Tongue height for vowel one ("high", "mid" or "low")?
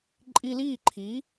high